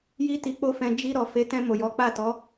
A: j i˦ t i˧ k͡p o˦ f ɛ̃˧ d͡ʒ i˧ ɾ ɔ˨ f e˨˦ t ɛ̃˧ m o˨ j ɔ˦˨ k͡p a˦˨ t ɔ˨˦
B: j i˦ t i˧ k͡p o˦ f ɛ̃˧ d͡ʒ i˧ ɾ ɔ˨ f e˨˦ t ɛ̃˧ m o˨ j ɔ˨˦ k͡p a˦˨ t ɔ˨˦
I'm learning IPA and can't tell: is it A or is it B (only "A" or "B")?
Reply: B